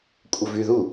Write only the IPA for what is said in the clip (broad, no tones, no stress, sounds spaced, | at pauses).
kʷʼ ə v y ð u